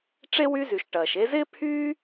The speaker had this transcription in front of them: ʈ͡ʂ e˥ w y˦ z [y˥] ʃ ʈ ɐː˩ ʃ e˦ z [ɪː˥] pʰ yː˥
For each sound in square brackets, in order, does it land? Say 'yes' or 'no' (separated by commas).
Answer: no, yes